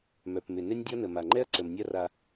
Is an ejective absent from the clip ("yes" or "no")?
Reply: yes